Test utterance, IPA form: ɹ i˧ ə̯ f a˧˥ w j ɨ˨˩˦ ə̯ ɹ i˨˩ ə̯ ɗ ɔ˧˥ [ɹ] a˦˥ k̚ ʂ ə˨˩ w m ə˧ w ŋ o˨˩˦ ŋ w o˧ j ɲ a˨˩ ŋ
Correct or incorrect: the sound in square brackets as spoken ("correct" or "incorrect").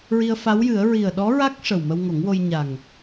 correct